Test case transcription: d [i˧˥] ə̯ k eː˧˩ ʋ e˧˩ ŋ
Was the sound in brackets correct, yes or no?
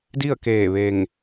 no